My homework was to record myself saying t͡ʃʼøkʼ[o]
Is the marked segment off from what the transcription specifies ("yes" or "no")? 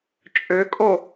no